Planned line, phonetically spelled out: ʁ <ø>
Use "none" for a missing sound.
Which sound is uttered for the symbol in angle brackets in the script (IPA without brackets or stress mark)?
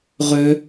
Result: ø